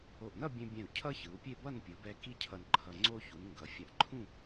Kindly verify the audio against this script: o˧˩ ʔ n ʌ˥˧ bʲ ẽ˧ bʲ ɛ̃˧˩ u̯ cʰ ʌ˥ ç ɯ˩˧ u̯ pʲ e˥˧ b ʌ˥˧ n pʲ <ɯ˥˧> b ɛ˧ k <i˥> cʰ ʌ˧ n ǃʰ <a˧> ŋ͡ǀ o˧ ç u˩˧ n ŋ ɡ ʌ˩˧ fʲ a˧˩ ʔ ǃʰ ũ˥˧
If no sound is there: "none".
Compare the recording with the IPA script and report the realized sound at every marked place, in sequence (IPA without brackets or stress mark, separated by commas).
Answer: ɯ˩˧, i˥, ʌ˧